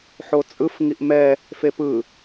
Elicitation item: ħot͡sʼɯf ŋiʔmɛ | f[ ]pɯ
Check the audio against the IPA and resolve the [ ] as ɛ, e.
e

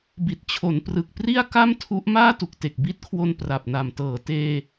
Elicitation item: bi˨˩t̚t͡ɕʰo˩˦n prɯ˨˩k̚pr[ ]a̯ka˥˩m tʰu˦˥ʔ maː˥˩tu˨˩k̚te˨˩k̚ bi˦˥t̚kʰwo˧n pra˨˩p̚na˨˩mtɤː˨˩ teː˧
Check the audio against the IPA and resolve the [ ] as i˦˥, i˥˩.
i˥˩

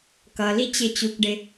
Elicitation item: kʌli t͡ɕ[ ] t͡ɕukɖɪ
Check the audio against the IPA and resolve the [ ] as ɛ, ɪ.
ɪ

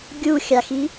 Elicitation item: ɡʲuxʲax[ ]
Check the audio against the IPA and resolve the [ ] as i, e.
i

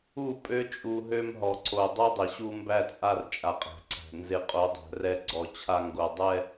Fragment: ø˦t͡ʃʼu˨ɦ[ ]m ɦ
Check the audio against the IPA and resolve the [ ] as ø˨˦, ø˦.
ø˦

